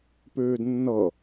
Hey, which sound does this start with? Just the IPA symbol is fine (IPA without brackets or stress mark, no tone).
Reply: p